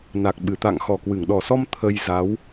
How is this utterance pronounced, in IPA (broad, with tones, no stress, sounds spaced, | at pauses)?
n a˨˩ k̚ ɓ ɨ˧˩ t̪ a̰˧˨ ŋ x ɔ˨˩ k w ɨ˧˩ ŋ ɗ ɔ˨˩ s ɔ˧ m t̪ʰ ə˧ j z a˨˦ w